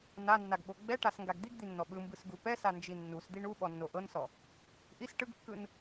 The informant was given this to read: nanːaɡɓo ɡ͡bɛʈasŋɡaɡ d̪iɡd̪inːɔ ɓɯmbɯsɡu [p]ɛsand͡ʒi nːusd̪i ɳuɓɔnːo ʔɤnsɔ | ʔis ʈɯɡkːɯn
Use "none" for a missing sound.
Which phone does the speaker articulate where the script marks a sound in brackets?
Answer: p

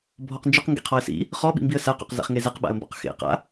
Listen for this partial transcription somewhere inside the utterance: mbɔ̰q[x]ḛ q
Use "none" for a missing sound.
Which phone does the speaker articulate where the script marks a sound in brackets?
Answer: x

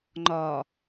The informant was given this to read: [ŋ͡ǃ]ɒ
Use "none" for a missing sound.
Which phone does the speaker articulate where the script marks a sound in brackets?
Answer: ŋ͡ǃ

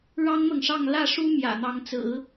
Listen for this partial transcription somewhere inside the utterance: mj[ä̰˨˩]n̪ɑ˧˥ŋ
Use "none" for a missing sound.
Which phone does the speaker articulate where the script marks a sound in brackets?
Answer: ä̰˨˩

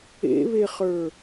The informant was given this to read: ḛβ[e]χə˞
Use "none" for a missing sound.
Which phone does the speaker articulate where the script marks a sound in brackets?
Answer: e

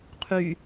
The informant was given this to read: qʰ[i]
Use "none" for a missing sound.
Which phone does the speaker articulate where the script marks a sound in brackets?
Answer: y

